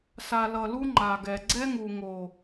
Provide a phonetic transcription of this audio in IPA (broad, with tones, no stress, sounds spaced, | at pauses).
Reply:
s a˨ l ʌ˨ l u˧ ŋ͡ǃ a˨ ɡ ɛ˨ ɡ͡ǀ ɛ˦ ŋ u˨ ŋ o˨